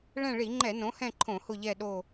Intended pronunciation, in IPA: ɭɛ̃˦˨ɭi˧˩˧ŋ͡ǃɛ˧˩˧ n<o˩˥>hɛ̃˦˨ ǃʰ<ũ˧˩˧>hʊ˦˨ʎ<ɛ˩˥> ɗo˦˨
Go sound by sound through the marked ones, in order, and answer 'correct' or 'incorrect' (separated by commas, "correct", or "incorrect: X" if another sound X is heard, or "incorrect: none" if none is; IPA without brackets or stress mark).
incorrect: õ˩˥, incorrect: õ˧˩˧, incorrect: ɛ˦˨